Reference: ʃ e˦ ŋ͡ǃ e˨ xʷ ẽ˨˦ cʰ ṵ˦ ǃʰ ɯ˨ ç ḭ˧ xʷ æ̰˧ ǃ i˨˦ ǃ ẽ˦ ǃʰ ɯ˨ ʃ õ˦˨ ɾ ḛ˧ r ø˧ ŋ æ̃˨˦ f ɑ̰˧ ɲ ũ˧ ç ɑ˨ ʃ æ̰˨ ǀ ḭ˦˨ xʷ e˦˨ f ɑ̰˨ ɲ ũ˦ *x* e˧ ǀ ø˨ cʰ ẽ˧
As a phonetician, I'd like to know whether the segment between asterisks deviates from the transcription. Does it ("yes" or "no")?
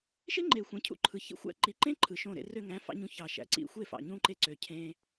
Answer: yes